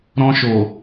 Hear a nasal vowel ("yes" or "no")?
yes